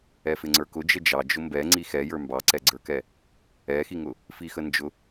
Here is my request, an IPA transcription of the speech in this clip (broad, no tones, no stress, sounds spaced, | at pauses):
ɛ f ɪ ŋ͡ǀ ə˞ k ʊ d͡ʒ ə d͡ʒ ɑ d͡ʒ ʊ m b ɛ ŋ͡ǀ i x ɛ j ə˞ m b ɑ ǀ ɛ ɡ͡ǀ ə˞ k ɛ | ɛ x i ŋ ʊ | f i x ə n d͡ʒ ʊ